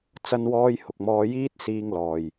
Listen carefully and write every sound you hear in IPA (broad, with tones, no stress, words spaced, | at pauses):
t͡sɐ˧nwɔː˧j hʊ˨k̚mɔː˧jiː˥t̚siː˧ŋ lɔː˨j